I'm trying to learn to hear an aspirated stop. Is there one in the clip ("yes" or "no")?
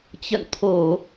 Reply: yes